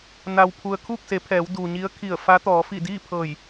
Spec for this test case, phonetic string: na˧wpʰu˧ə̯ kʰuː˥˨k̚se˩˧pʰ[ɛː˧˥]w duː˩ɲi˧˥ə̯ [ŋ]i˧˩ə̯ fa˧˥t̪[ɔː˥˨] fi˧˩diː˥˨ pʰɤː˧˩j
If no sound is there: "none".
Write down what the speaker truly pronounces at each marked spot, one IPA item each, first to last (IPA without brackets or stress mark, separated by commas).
ɛː˩˧, kʰ, ɔː˩˧